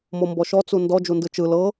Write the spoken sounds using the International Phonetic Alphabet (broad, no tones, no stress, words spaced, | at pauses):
mombɔʃɔ t͡sundɔ d͡ʒundɯt͡ʃɯ lɤ